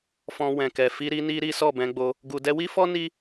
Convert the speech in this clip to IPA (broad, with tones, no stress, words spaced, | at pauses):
fɔ̃˧ wɛ̃˨kɛ˨ fi˧ɾi˧ni˧ ɾi˦sɔ˦˨bɛ̃˧ɡ͡bo˧ | ɡu˨dɛ˧wi˦fɔ˦ ni˦